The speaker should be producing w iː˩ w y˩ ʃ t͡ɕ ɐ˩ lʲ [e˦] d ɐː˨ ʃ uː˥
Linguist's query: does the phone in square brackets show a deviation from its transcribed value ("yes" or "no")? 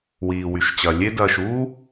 no